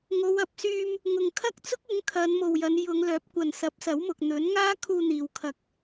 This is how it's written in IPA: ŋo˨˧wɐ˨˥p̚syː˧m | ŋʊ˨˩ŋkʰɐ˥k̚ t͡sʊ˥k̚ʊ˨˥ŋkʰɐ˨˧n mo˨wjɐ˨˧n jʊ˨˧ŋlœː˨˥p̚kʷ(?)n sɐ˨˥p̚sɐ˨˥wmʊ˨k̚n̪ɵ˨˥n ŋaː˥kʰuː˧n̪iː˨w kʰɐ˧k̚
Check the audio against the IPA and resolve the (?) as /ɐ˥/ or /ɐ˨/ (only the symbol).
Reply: ɐ˨